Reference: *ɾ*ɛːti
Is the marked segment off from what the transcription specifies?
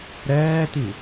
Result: no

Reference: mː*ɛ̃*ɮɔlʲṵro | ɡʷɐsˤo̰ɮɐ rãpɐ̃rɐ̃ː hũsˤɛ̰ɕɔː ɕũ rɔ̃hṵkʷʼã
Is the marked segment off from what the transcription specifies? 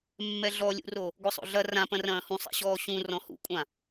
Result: yes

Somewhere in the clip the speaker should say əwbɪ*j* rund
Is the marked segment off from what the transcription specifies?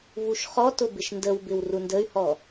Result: yes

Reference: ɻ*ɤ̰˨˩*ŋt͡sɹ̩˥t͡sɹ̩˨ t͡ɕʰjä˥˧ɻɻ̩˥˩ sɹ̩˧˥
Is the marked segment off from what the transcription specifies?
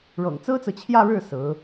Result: no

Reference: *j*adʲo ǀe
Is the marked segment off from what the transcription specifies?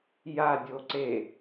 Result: no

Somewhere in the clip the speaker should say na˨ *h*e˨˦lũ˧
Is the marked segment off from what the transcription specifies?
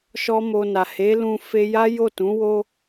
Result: no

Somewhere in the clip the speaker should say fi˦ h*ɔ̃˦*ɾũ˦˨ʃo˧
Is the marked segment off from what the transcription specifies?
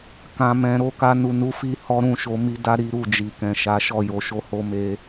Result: yes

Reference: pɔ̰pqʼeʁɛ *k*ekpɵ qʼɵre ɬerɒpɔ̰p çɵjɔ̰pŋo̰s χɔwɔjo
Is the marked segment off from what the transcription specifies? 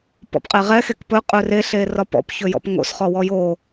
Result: yes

